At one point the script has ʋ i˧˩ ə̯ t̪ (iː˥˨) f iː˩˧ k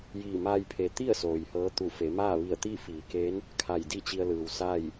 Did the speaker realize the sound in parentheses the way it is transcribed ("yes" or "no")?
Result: yes